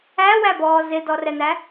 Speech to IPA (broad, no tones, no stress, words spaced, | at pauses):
æwæbɔː zɪdɔrɛn̪æ